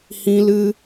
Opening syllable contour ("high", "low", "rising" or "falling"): high